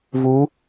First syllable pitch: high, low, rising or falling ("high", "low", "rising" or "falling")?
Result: rising